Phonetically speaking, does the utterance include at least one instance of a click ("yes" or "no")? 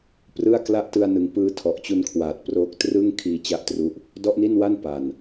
no